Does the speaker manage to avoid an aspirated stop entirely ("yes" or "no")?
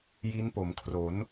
no